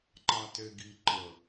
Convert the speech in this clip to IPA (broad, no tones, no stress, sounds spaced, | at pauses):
ǃ ɑ t e ɡ i ǃ ə